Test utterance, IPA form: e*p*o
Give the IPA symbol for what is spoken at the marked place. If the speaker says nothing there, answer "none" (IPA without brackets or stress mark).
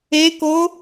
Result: k